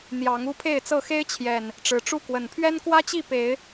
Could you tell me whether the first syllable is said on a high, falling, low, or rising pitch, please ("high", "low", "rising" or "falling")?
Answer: rising